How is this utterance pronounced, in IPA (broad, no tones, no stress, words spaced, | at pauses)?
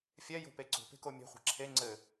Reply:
fʲɛjo̤pe ǀo̤pe̤ko mʲe̤χʷe̤ ǁʰe ŋ͡ǀɘ